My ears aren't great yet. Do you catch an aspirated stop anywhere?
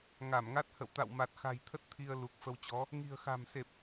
yes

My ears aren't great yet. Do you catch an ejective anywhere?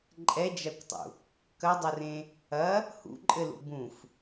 yes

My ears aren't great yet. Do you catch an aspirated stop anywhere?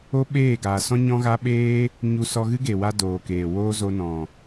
no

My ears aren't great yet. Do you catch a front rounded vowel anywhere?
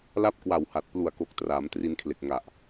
no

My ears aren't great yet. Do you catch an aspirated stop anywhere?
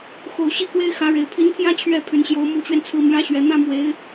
yes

